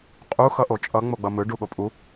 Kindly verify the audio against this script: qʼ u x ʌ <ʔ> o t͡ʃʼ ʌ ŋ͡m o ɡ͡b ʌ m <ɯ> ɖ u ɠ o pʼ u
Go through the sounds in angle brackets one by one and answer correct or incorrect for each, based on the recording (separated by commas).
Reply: correct, correct